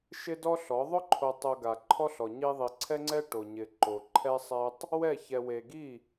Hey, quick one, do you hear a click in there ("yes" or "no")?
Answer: yes